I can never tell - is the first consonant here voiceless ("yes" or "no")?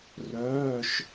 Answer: no